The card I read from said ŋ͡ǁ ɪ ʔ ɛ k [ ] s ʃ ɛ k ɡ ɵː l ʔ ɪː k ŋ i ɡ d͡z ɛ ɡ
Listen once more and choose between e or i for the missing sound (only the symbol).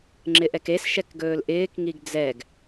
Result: e